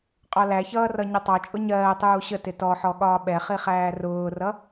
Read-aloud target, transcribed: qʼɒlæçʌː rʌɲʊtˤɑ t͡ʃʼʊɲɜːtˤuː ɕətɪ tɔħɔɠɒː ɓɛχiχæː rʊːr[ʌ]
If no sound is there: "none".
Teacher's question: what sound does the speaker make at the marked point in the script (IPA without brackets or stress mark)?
ʌ